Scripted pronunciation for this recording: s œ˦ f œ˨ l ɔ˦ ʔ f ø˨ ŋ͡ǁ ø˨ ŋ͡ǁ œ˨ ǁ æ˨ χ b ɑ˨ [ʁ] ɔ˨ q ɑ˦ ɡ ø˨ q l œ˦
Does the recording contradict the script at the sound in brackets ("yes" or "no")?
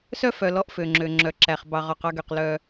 no